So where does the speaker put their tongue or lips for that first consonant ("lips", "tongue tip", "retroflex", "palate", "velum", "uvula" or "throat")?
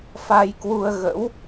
lips